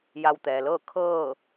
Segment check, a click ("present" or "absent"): absent